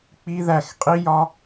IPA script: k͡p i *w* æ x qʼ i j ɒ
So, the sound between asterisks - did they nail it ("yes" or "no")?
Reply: no